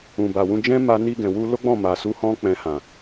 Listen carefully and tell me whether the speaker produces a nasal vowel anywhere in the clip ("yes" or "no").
yes